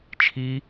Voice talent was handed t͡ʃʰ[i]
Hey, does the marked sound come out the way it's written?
yes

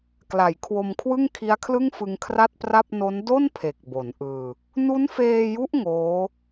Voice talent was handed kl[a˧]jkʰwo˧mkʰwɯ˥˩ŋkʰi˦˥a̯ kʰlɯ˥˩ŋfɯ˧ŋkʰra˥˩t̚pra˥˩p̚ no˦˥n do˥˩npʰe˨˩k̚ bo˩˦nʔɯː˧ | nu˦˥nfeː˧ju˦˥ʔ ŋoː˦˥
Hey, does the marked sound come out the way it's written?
no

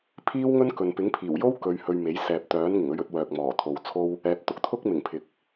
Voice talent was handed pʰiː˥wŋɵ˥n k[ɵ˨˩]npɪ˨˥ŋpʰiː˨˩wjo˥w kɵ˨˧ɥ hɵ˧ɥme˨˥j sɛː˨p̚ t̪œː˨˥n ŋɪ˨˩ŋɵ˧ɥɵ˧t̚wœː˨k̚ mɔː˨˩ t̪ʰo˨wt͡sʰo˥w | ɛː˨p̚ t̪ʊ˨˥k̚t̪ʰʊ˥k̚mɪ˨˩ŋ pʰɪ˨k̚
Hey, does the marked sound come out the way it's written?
no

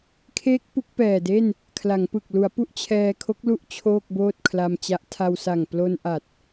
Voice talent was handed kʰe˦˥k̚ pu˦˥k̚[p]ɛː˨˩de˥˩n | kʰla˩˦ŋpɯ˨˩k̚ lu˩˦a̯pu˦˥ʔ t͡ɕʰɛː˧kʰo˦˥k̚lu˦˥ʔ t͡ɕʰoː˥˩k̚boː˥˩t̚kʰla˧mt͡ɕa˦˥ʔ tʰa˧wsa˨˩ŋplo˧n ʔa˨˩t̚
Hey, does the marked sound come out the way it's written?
yes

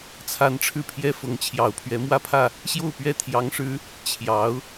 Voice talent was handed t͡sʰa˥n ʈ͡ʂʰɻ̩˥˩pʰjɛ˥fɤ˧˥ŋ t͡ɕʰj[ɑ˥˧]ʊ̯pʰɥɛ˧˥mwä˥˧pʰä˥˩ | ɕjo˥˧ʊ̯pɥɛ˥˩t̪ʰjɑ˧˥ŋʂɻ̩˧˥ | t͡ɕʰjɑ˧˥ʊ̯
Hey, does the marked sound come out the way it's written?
no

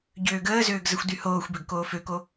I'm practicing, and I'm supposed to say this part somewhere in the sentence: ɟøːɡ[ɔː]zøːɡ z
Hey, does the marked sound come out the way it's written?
no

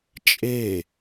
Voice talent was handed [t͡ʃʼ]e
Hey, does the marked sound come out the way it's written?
yes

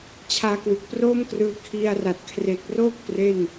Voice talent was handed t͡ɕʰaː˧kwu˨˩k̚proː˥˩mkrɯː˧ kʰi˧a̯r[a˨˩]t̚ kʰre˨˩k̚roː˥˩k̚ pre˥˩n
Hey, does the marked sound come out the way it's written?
yes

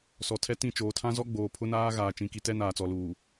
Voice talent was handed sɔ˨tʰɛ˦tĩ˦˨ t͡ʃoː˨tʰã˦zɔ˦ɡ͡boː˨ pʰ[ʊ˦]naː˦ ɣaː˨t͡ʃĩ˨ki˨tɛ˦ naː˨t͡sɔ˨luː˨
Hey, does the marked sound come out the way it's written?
yes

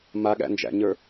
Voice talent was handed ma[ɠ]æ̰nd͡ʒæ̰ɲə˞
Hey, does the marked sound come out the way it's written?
yes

